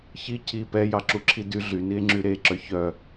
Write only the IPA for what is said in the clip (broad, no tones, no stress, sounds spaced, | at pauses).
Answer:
ç i cʰ i p ɛ j ɑ ǁ u ǁʰ i d y ɮ y n i e̯ ŋ͡ǁ y ɾ e ǁ œ ç œ